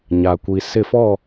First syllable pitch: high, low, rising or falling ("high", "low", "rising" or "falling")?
low